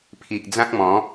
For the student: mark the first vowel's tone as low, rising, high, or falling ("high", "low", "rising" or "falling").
low